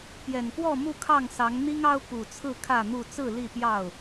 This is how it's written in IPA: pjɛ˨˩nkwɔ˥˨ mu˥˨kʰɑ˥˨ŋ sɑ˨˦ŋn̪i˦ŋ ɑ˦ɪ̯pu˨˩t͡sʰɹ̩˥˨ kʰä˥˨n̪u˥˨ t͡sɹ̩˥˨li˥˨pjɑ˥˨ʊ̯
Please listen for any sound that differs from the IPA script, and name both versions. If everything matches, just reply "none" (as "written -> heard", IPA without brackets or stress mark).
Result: ɪ̯ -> ʊ̯